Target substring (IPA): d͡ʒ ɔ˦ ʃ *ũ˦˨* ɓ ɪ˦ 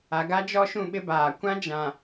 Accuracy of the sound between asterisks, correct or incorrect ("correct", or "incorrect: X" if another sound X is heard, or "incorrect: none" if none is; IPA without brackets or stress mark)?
correct